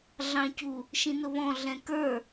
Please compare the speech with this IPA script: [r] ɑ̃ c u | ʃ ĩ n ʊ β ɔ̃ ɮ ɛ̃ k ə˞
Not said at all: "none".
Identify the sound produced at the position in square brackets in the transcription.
ɮ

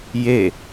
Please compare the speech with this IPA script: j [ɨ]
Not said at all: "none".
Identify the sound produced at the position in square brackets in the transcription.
e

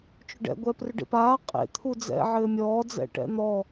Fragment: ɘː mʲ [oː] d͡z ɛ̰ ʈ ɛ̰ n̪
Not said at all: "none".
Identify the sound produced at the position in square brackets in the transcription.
ɔː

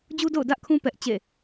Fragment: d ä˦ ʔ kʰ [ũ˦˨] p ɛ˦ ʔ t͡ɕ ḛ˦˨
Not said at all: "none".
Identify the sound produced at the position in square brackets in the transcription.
ũ˦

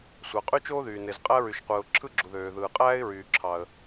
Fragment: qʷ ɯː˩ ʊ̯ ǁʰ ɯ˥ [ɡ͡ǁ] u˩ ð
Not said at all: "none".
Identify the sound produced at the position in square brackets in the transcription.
ɡ͡ǁ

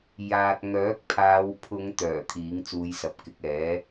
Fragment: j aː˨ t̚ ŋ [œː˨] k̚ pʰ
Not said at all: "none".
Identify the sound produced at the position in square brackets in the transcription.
œː˨˥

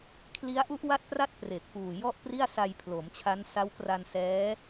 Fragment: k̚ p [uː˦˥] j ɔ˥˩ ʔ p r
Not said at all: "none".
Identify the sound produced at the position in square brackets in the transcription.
uː˨˩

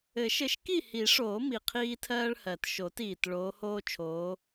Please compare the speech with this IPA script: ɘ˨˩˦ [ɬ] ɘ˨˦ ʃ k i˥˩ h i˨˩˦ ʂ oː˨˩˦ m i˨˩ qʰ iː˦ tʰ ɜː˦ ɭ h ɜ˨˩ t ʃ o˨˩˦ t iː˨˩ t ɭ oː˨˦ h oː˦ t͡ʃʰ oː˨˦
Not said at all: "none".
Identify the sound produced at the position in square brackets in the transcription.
ʃ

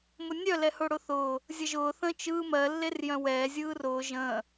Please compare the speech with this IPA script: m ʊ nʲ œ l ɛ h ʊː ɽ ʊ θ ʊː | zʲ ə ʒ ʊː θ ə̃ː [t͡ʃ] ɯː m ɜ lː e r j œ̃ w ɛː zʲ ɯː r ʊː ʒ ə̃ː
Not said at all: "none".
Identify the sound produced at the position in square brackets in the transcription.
t͡ʃ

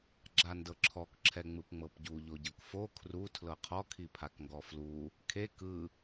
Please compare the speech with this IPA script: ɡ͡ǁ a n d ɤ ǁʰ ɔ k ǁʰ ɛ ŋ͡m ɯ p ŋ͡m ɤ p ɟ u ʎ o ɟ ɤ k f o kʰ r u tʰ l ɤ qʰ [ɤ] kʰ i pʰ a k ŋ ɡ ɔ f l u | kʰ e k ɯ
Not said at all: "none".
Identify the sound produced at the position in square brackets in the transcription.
ɔ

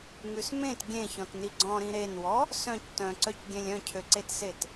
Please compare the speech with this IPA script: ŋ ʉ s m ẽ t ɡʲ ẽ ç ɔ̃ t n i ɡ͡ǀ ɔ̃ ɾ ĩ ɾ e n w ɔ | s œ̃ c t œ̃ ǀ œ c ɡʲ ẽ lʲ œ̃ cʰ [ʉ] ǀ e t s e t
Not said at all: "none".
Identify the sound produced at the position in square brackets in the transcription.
ø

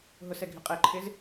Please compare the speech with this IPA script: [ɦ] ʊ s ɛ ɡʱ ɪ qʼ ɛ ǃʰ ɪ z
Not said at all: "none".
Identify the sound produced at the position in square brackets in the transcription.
ɦ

